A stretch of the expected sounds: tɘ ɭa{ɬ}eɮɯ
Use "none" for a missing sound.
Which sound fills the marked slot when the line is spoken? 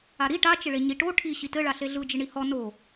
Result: ɬ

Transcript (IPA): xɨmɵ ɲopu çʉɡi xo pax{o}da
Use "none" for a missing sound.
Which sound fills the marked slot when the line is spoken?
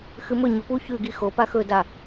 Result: ɵ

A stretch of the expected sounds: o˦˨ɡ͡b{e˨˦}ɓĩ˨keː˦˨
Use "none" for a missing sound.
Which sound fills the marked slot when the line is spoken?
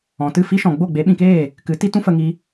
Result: e˨˦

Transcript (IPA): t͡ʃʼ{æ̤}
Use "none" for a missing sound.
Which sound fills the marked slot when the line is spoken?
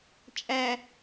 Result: æ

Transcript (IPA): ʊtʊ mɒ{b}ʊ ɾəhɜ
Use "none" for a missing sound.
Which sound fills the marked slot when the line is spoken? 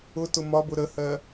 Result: b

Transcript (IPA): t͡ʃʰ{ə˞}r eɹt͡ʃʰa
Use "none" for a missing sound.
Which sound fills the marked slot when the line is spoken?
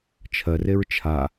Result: ɜ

